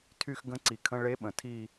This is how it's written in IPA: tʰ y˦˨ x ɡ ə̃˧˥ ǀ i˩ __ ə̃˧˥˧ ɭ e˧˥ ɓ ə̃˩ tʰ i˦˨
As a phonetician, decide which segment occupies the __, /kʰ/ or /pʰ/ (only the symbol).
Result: kʰ